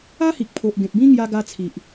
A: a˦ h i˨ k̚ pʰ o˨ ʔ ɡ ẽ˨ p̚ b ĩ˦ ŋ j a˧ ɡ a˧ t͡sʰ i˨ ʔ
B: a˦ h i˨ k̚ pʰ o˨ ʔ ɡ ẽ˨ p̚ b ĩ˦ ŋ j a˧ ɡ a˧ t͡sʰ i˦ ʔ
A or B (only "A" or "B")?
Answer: A